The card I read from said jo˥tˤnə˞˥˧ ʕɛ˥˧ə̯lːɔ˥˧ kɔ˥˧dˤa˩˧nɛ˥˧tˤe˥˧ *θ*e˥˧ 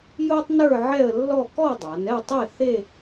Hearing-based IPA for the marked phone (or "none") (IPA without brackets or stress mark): θ